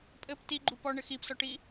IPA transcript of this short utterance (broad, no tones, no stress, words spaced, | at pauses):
pʼɘp tiɡ͡ǃup ɔɳɘ xipsɔʈi